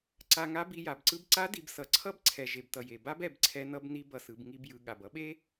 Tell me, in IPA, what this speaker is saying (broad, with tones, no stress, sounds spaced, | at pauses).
ǀ a˧ ŋ a˧˥ b i˧ j a˩ b ǀ ɯ˧ b ǀ a˧˥ d i˩˧ b s ʌ˩˧ ǀʰ ʌ˥ b ǀʰ ɛ˩ ʒ e˩ b t ʌ˩ j e˩ b a˥ b ɛ˩˧ b ǀʰ ɛ˧˥ n ʌ˧˥ b n i˧˥ b ʌ˩ s ɯ˩˧ b ŋ i˧ b j ɯ˩˧ ɠ a˩ b ʌ˥ ɓ e˥